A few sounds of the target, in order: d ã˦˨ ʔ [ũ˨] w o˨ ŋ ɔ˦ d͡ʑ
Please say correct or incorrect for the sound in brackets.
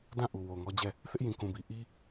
incorrect